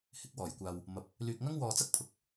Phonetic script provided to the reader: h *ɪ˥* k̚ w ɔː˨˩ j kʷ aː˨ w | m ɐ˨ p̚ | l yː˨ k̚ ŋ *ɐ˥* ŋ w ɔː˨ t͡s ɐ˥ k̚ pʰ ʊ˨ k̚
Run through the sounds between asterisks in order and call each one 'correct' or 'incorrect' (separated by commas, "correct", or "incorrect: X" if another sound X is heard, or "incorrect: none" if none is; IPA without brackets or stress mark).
incorrect: ɪ˨˥, correct